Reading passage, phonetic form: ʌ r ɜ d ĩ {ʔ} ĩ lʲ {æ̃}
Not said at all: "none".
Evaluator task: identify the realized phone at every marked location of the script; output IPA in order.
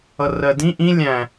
ʔ, æ̃

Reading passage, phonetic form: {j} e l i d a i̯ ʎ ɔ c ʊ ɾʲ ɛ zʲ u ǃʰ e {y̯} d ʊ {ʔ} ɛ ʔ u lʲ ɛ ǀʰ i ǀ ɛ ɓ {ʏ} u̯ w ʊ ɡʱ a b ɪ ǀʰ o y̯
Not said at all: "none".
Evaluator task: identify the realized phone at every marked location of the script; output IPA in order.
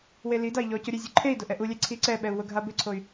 w, i̯, ʔ, ɛ

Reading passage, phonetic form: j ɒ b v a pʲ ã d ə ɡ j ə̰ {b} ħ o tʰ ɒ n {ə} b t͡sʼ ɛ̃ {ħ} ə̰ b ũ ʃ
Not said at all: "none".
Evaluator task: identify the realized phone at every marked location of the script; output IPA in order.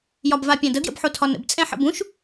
b, ə̰, ħ

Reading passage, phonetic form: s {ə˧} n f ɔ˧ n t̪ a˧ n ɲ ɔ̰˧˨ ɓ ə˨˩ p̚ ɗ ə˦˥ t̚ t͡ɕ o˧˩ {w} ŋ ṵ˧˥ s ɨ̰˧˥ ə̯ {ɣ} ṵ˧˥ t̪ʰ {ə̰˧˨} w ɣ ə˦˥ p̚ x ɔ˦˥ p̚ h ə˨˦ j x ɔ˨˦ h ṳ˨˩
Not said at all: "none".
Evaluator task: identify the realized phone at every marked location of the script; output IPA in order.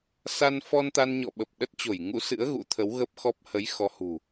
a˧, j, ɣ, ə˨˦

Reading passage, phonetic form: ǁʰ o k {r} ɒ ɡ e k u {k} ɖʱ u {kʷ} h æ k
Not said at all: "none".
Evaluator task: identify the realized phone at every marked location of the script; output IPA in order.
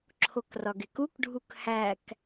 r, k, k

